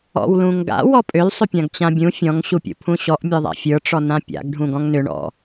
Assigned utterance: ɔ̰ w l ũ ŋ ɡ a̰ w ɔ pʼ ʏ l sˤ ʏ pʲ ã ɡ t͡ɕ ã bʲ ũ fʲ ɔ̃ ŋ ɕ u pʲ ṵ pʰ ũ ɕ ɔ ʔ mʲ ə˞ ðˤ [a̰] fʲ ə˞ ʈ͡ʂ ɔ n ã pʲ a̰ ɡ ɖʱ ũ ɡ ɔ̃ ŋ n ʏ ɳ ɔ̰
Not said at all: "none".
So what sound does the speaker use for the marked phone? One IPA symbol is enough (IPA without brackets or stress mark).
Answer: a̰